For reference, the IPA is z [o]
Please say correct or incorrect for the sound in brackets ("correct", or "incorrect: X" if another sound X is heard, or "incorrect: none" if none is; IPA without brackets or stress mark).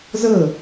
incorrect: ɤ